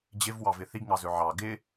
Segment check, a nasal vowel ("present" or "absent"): absent